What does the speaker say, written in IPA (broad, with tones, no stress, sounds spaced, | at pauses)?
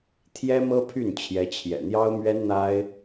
t̪ʰ j ɛ˥ m ɤ˥ pʰ y˥˩ n t͡ɕʰ j ɛ˧˥ t͡ɕʰ j ɛ̰˨˩ n̪ j ɑ˥ ʊ̯ m ɥ ɛ˥ n n̪ a˥ ɪ̯